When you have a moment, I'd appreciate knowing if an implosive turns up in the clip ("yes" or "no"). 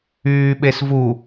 yes